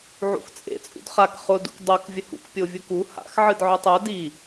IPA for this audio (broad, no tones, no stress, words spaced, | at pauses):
ʕṵxt͡sʼḛ t͡sʼṵdχak χʊ dṵkdˤok vʲəhṵk pʲovʲuku ha̰x ʕɨdʕøtˤœ di